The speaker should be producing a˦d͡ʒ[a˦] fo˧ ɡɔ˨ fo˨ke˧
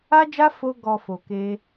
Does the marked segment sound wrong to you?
no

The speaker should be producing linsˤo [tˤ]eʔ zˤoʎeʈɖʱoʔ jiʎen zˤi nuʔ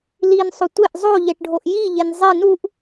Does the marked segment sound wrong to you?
yes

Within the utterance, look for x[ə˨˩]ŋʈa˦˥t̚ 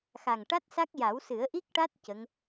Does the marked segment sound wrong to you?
yes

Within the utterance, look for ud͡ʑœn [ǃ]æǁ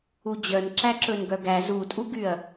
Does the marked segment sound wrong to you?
yes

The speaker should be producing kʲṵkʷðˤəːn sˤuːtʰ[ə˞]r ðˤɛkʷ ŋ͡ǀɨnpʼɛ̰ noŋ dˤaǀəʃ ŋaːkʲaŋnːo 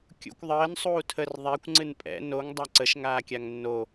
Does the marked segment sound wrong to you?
yes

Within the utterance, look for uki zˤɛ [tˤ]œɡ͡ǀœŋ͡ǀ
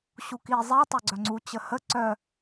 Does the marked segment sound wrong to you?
no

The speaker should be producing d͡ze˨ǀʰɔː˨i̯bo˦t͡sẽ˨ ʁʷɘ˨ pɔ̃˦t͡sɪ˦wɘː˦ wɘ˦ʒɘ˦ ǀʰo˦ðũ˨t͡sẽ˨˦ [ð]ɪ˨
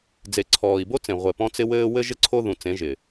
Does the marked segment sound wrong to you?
yes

